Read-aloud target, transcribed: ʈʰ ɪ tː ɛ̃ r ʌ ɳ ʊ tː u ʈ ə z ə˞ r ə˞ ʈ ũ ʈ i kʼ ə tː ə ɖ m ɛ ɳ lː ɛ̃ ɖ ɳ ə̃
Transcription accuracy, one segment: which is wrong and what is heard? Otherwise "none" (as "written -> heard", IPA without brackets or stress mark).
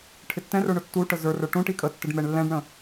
ʌ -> ə˞